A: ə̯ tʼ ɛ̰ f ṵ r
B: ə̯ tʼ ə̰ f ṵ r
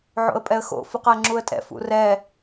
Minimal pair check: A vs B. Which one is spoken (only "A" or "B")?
A